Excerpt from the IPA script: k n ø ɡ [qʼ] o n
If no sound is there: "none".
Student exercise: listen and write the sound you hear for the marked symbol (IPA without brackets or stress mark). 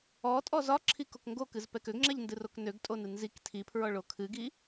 tʼ